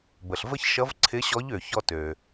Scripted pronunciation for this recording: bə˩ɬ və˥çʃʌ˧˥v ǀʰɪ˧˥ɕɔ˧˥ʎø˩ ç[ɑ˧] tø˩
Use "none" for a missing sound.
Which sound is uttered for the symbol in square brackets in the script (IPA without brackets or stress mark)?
ɔ˧